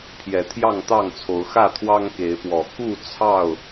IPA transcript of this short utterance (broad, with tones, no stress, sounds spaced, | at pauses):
pʰ j ɛ˨˦ t̪ʰ j ɑ˥˨ ŋ t̪ ɑ˥˨ ŋ t͡sʰ o˨˦ ʊ̯ x ä˥˨ t̪ʰ w ɑ˦ ŋ k e˨˦ ɪ̯ p w ɔ˨˩ k u˥˨ t͡sʰ ɑ˥˨ ʊ̯